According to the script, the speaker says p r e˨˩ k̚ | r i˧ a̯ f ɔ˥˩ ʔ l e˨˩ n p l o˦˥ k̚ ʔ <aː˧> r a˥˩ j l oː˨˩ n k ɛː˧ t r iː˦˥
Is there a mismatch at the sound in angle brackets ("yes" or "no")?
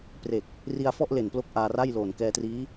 no